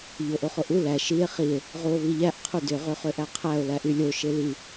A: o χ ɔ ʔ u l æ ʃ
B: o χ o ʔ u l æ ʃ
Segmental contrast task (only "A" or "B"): B